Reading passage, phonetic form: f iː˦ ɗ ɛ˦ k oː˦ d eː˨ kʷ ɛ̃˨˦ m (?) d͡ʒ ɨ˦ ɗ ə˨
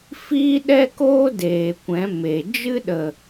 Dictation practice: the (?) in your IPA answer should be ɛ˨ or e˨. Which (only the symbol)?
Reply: e˨